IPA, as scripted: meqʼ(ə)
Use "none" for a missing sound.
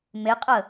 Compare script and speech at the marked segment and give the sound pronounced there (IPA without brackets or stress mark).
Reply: ə